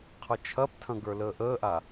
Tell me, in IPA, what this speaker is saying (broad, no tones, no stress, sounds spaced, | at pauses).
qʰ ʌ t͡ʃʰ ɐ p tʰ ɐ̃ ɡ ə˞ l əː ʔ əː ʔ a